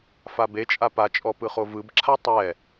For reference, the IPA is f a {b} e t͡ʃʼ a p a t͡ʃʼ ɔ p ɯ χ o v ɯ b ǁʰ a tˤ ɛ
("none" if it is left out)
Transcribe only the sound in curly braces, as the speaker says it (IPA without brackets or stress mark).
b